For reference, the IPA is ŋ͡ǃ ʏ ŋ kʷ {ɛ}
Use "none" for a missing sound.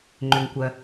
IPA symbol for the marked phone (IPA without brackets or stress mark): ɜ